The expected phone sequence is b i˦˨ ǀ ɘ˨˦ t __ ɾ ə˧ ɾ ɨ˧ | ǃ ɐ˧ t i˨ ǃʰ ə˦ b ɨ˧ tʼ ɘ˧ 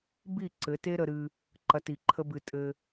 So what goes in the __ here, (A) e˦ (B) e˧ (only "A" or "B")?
A